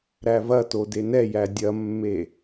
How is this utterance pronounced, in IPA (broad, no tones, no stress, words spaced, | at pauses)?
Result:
ɾævɐto denɛjæ dʲɐmːe